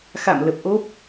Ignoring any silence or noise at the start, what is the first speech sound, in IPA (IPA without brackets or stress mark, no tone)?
x